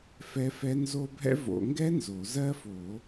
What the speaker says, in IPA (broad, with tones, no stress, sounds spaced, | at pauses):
f ɛ˦˥ f ɛ˦˥ n z o˦˥ bʱ ɛ̰˦˥ v o̰˨˩˦ ŋ ɡ ɛ˦˥ n z o˨˩˦ z ɜ˦˥ f o˨˩˦